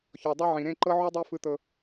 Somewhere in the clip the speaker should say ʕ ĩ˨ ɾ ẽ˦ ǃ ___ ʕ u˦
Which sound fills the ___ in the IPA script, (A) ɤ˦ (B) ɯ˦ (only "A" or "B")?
A